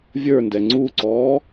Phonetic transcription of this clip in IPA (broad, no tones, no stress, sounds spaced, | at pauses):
vʲ ə˞ n d ɛ ŋ͡ǀ u ǀ ɔː